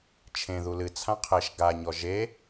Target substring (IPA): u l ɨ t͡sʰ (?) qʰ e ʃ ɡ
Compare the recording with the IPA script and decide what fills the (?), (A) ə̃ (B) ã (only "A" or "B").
B